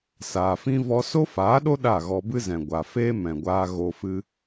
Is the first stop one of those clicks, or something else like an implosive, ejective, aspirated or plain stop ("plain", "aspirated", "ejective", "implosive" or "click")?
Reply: implosive